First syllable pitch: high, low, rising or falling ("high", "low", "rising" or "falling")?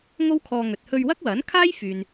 high